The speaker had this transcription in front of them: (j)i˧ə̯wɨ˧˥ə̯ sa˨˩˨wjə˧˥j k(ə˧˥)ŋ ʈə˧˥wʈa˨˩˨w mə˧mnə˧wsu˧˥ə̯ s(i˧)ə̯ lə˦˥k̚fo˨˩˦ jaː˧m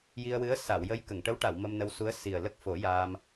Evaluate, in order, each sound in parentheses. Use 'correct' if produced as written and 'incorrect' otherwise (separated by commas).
correct, incorrect, incorrect